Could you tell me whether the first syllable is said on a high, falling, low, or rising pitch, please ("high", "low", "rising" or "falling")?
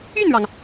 falling